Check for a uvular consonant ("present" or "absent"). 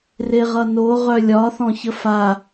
present